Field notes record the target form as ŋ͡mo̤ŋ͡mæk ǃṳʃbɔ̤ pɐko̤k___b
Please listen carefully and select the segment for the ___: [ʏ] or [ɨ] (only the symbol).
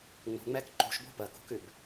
ʏ